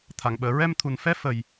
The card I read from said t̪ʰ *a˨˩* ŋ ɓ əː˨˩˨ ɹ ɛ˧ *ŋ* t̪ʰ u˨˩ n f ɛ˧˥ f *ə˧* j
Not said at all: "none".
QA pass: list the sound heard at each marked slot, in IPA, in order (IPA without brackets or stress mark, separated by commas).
a˨˩˨, m, ə˨˩